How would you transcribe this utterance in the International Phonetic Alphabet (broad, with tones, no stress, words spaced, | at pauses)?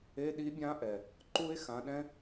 e˧˥˧ɗi˦˥bʲã˦˥ʔɛ˩ | ǃu˦˥e̯xã˨˦ɗɛ̃˦˥